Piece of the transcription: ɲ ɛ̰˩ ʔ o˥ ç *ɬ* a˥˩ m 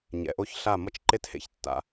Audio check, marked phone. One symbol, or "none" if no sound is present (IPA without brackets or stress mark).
ɬ